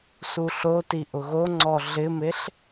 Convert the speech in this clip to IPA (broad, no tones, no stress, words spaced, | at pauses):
suɬoti ʔʊɣoŋ͡ǀɔ ɮɪmeɬ